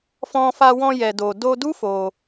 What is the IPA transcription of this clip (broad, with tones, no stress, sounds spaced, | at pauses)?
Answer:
f ɔ̃˧ f a˧ w ɔ̃˧ j ɛ˨ d o˨ d o˧ d u˦ f o˧